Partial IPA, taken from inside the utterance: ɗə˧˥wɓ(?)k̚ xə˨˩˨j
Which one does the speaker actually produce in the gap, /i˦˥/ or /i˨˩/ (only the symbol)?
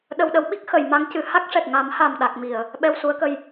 i˦˥